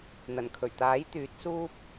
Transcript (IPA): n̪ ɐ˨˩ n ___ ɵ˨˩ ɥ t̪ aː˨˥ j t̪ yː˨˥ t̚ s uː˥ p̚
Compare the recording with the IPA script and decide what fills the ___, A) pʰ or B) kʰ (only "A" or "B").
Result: B